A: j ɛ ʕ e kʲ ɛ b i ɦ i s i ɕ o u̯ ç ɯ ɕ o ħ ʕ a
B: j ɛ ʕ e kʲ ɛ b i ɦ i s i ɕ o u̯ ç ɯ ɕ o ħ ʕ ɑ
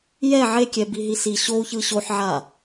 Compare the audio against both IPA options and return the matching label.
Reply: A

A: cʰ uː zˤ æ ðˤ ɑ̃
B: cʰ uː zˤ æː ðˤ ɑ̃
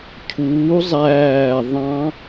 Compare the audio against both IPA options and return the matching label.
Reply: B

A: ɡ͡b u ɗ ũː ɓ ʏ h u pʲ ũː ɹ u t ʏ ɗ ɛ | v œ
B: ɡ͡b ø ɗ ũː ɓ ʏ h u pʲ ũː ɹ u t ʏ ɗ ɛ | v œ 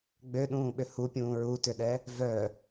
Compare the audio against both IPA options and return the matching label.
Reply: B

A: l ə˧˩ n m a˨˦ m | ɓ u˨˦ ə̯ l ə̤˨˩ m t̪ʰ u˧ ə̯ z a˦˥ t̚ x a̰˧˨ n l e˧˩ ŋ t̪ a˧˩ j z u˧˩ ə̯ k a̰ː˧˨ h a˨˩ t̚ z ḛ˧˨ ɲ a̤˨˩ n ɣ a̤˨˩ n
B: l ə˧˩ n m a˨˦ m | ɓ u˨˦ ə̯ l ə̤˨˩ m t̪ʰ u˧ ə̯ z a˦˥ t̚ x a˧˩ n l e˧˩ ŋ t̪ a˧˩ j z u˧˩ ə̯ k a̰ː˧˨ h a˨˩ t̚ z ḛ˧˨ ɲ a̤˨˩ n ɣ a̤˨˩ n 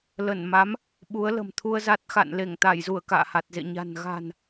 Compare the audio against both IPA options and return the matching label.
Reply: A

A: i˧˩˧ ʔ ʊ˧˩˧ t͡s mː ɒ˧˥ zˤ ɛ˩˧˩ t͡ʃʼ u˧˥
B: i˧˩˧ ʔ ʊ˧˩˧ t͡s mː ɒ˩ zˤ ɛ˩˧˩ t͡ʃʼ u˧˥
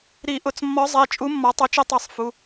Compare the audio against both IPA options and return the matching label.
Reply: A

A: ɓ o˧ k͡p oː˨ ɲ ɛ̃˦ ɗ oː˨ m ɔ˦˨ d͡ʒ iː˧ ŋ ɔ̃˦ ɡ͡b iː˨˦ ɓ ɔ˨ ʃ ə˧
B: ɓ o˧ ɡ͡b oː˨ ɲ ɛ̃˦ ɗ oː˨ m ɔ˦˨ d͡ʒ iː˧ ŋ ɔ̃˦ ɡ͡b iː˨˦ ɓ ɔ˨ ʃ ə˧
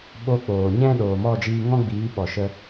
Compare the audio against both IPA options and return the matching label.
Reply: A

